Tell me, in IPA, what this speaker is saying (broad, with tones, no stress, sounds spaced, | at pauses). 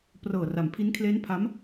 p r ɤː˨˩ r a˩˦ m pʰ i˦˥ n kʰ l eː˦˥ n pʰ a˦˥ m